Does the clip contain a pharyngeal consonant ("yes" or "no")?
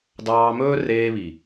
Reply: no